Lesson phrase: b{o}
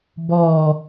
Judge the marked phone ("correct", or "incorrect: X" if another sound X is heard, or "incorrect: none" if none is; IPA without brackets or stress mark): incorrect: ɔ